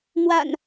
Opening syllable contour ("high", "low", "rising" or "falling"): low